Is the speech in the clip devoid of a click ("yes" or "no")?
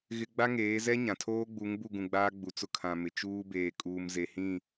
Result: yes